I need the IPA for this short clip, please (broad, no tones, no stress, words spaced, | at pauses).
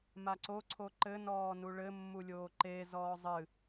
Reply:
maǀoǀʰo ǃɘnɔː nuɭɘmːulʲoː ǃe zɔːzˤɨ